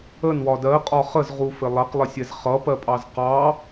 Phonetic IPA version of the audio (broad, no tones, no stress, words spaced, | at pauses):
ənwɒ dɜqʼɒ χəzʁufɪ lˠɜqlˠɪsʲɛz χʌpɜpʼɑz qɑ